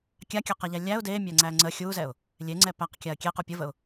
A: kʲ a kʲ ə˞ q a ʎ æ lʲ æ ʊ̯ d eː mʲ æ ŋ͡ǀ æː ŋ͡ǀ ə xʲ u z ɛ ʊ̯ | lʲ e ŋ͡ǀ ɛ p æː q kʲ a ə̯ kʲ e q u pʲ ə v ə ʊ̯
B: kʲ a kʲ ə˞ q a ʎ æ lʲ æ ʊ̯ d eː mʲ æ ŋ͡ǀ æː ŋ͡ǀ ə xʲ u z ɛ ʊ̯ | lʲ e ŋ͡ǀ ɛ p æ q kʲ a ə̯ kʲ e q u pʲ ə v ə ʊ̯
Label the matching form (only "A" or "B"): B